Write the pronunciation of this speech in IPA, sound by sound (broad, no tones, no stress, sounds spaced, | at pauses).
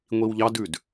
ŋʷ i w ʎ ɑ d ʉ d